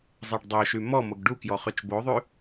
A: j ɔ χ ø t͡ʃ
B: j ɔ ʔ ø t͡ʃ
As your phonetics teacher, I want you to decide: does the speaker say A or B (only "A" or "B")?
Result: A